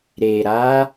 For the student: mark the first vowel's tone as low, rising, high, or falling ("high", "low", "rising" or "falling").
low